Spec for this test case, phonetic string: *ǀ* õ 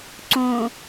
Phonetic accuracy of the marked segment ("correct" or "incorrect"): correct